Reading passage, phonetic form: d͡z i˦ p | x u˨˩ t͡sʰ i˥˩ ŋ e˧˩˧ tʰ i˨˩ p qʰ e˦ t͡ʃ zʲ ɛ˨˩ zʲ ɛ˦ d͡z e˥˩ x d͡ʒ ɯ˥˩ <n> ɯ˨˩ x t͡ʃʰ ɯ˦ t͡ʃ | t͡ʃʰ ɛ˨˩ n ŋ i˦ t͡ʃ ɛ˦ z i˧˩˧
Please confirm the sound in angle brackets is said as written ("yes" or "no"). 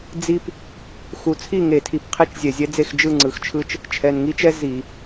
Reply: no